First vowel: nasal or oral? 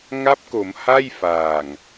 oral